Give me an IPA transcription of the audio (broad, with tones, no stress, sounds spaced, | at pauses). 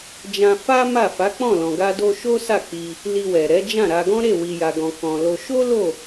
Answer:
d͡ʒ ã˧ f a˦ m a˦˨ f a˨˦ k͡p ɔ̃˦˨ l ɔ̃˨ ɡ a˧ d o˧ ʃ o˦ s a˦˨ k͡p i˧ | l i˧ w ɛ˨ ɾ ɛ˨˦ d͡ʒ ã˦˨ ɾ a˧ ɡ ɔ̃˦ ɾ e˦˨ w i˨ j a˨ ɡ ɔ̃˨ k ɔ̃˨ l o˧ ʃ o˦ l o˦˨